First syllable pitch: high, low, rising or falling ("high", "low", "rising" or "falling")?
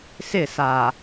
falling